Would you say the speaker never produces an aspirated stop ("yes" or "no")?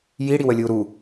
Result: yes